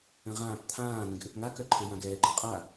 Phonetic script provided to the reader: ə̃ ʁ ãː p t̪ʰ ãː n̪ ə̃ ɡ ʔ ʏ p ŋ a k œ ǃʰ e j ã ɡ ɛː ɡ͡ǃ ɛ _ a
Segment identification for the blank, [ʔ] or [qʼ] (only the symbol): qʼ